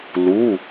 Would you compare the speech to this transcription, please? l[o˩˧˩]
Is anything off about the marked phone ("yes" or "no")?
yes